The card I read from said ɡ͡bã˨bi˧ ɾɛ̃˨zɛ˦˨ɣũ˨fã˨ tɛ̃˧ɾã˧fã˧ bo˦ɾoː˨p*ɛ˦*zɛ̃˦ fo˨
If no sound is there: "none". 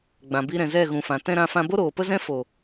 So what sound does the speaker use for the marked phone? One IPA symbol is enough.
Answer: ə˦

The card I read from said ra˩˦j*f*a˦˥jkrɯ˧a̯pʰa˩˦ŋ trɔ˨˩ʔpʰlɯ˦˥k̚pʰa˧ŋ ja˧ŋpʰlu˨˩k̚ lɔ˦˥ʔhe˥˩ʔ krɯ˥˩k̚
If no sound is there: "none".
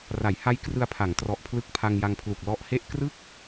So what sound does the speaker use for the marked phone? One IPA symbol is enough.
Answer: h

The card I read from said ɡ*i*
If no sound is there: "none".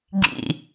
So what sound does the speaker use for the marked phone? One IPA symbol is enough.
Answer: ḭ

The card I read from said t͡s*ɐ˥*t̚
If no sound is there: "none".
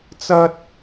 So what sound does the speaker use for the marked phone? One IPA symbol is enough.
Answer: ɐ˥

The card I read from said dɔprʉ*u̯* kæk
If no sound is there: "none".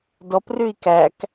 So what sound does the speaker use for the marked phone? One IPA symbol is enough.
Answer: i̯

